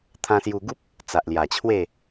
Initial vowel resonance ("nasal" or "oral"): nasal